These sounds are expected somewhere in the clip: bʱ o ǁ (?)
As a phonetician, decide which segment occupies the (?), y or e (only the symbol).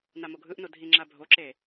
e